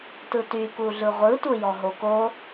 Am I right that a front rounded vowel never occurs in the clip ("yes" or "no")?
no